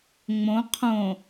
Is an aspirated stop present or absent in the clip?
present